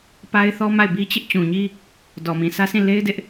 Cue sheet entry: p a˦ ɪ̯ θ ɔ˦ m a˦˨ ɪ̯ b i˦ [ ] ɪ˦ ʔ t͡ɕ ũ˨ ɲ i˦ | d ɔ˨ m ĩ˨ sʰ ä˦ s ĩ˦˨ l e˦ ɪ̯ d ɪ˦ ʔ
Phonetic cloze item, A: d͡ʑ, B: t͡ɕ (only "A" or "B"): B